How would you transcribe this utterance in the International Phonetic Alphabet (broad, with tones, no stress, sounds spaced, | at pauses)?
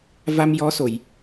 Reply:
v a˧ m j ɔ˧˥ s o˨˩˨ j